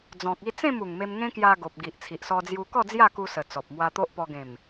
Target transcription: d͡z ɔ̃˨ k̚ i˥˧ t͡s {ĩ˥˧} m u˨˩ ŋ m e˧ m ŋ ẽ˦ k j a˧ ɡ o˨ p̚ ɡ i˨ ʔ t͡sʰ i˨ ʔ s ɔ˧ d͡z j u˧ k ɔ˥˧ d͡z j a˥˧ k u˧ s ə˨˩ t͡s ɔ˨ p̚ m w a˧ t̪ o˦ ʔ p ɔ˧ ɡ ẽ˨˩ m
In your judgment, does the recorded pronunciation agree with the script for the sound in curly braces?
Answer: no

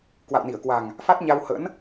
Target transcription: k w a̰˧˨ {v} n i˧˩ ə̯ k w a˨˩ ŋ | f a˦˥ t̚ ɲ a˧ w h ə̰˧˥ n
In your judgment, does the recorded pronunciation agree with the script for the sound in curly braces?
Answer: no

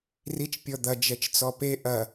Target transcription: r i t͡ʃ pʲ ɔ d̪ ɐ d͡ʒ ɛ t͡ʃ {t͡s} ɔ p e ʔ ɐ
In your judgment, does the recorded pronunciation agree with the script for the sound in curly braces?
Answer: yes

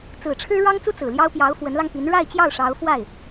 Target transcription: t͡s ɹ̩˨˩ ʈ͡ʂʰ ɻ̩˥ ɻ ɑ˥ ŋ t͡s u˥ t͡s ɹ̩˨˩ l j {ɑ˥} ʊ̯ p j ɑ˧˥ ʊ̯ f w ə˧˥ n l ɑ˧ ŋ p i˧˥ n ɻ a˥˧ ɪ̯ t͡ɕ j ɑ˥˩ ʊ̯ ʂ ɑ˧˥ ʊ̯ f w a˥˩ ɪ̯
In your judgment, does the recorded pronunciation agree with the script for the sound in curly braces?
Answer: yes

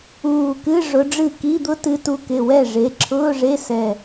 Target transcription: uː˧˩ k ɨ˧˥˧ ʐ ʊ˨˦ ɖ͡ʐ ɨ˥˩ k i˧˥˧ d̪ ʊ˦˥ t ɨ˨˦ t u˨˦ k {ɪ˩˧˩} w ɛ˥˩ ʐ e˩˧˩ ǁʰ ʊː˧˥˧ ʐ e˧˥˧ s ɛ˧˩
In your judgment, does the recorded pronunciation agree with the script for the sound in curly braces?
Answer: yes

